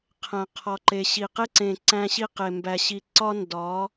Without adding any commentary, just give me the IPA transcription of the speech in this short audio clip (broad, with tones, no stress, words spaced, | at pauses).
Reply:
qʰæ̃˨qʰɒ˨ǃe˨ ɕi˨qe˦ǀẽ˨ ǀæ̃˦ɕi˦qe˨ mbæ˨ɕi˨ǀɒ˦ ndɒ˨˦